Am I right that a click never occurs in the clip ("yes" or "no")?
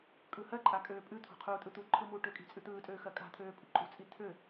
no